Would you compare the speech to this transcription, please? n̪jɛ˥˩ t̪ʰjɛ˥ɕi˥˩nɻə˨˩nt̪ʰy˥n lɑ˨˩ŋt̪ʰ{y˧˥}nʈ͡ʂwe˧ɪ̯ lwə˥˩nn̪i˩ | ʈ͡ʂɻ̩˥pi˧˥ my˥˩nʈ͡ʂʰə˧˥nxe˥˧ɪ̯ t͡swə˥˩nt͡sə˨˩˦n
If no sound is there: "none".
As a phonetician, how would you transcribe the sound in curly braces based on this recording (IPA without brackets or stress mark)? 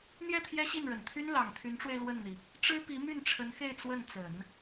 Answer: y˧˥